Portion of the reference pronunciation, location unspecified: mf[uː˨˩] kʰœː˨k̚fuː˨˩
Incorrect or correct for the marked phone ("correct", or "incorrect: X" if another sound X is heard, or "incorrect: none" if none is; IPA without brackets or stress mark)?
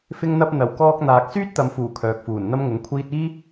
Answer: correct